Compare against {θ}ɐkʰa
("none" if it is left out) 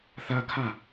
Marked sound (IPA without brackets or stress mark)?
θ